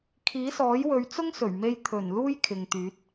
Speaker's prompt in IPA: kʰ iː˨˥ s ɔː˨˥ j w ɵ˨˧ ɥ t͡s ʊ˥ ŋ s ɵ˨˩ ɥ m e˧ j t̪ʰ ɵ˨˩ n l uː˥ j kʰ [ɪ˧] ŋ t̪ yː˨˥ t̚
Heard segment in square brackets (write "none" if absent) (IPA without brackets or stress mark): ɪ˨